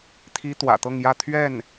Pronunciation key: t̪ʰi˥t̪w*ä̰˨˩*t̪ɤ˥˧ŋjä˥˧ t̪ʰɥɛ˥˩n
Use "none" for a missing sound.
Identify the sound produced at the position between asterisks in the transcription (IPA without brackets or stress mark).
ä̰˨˩